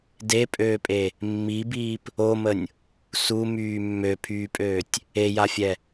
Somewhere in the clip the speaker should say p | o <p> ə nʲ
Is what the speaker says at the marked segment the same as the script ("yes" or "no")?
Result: no